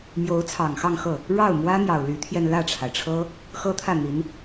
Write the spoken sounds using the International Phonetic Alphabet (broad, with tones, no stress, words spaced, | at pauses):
mjo˧˥ʊ̯t͡sʰɑ˨˩ŋxɑ˥˧ŋxɤ˥˩ | ɻɑ˥˩ʊ̯mwä˥n̪jɑ˨˩ʊ̯ ly˧˥t̪ʰjɛ˧n lä˥˩ʈ͡ʂʰa˩ɪ̯ʈ͡ʂʰɤ˥ | xɤ˥t̪ʰä˥˩n̪i˧˥n